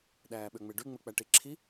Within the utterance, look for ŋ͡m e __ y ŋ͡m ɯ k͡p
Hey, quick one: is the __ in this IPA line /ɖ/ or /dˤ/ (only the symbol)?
ɖ